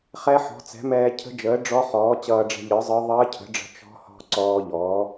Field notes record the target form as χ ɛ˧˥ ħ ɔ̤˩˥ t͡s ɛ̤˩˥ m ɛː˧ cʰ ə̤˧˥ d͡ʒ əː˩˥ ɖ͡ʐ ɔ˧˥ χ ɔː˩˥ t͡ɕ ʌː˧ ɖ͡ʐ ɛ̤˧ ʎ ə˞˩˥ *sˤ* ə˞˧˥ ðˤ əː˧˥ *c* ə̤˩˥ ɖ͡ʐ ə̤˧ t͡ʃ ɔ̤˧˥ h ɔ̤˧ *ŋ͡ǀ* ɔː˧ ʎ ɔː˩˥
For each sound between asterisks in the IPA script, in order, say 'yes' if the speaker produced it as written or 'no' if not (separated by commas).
no, no, no